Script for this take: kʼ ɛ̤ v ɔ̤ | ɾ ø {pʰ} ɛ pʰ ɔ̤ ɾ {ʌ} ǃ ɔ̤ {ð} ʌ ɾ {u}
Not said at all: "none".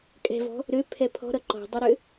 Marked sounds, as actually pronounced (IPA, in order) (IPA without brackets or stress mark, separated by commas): pʰ, ʌ, dˤ, ø